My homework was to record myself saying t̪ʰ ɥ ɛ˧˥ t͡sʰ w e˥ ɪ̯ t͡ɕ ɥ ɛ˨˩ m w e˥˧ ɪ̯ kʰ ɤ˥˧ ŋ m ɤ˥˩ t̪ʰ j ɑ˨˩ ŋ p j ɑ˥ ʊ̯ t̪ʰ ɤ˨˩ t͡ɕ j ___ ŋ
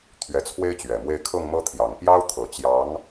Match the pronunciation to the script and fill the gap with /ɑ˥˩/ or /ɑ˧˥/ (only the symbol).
ɑ˧˥